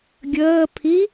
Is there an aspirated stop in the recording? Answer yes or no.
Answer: yes